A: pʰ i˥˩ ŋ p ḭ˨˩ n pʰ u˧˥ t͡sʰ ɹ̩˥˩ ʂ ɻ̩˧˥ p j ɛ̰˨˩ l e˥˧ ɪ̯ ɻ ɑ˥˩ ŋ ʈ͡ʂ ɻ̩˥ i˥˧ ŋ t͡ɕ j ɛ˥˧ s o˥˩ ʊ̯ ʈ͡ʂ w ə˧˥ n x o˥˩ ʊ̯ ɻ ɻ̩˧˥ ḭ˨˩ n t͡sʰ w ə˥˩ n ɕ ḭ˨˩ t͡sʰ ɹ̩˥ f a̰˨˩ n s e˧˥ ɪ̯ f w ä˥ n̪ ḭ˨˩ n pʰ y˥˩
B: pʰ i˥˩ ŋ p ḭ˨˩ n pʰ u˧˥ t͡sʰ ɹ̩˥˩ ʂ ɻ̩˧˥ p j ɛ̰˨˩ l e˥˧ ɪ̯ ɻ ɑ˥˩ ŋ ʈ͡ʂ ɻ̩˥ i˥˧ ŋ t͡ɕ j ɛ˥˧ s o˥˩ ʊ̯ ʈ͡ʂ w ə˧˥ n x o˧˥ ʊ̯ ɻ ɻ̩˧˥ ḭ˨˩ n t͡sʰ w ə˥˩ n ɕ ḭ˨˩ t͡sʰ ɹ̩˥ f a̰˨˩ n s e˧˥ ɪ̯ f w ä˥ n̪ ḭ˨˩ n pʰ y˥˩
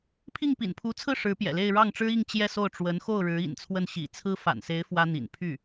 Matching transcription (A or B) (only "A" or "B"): A